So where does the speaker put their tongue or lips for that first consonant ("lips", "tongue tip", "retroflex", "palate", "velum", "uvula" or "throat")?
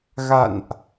velum